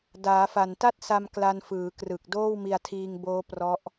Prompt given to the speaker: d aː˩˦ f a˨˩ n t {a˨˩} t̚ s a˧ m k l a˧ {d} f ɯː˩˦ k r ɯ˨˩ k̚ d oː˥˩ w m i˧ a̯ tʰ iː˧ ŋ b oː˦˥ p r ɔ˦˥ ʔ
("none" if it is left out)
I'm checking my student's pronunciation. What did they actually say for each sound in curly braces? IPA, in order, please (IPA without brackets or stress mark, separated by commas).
a˥˩, n